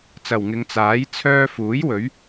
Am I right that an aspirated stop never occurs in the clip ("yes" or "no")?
no